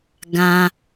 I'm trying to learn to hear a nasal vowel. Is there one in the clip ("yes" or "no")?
yes